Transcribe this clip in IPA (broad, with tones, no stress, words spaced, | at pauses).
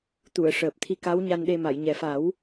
t̪u˨˩˨ə̯ʂəː˨˩p̚t̪ʰi˧ka˧˥w ɲa˧nɗe˧ ma˨˩˨jɲɛ˨˩fa˨˩˦w